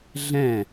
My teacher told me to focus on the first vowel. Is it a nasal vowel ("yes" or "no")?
yes